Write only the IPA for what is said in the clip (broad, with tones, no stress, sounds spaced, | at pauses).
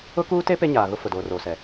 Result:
ʊ˦ k uː˦ t e˦ p e˦ ɲ aː˨ ɣ ʊ˦ f ʊ˨ d oː˨ r oː˨ s ɛ˨